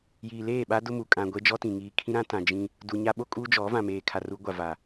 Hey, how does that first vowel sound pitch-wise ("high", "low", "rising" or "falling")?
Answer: low